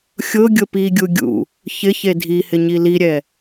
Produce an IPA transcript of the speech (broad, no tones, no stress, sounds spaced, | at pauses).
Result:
xʲ ʊ ɡʲ ʊ p i ɡʲ u ɡʲ ṵ | ç ɪ ç e dʱ i h ɪ ɲ i l i ɾʲ ɛ